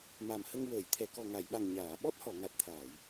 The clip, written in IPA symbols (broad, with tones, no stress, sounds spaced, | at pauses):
m a˨˩ m h ə˧ ŋ w əː˨˩˨ j t̪ʰ ɛ˨˩˨ k ɔ˨˩ ŋ a˨˩˨ j ɓ a˨˩ ŋ ɲ aː˨˩˨ ɓ ɔ˦˥ t̚ h ɔ˨˩˨ ŋ a˨˩ t̚ t̪ʰ aː˨˩˨ j